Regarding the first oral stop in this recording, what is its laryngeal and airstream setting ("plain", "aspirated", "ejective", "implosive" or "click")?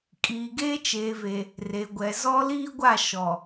ejective